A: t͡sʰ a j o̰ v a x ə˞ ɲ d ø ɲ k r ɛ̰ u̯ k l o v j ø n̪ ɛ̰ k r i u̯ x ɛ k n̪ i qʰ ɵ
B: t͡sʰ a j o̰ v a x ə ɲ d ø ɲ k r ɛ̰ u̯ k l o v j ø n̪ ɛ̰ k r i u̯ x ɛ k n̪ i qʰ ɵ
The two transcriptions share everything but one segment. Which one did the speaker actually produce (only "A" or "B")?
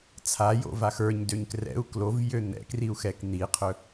A